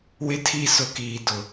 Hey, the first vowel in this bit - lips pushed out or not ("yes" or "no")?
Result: no